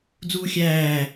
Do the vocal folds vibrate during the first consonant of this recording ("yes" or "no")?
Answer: yes